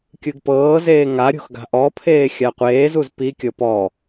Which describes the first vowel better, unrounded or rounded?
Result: unrounded